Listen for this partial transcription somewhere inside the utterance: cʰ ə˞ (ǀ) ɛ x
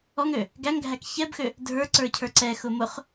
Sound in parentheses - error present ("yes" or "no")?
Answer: no